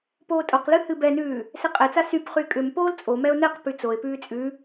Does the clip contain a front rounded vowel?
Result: yes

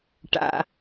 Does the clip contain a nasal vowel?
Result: no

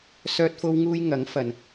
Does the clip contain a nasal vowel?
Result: no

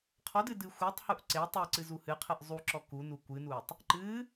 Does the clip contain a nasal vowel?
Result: no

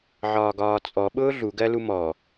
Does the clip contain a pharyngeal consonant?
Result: yes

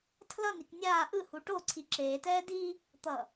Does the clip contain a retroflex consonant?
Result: yes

